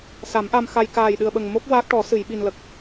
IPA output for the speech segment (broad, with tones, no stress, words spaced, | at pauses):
sa˨˩˦mʔa˧m xa˧j kaː˨˩jɗɨ˨˩ə̯ ɓə˨˩ŋmo˦˥k̚ waː˦˥k̚ʈɔ˨˩˦ sɨ˨˩˨jɓi˨˩n lə˨˩k̚